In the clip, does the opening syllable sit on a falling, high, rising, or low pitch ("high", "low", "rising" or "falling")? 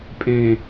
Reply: low